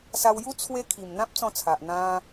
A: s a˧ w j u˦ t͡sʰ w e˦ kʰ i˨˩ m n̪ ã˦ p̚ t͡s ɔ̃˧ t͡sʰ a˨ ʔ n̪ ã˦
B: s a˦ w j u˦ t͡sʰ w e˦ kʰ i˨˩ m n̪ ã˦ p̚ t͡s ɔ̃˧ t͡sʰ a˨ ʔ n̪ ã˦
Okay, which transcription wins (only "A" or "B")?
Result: A